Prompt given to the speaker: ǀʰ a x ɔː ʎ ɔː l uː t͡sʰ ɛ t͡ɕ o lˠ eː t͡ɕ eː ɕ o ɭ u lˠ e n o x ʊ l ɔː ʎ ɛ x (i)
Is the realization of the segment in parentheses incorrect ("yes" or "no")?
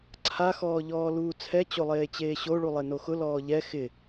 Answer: yes